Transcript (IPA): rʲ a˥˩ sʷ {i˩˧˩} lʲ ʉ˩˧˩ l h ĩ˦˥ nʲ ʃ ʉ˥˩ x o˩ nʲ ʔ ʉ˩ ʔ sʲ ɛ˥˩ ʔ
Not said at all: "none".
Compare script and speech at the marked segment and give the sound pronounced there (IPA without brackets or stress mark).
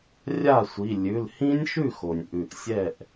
i˩˧˩